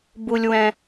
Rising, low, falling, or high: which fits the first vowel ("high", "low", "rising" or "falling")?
low